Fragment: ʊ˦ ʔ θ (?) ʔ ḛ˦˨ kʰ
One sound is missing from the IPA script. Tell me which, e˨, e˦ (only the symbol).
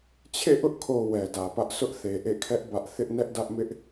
e˨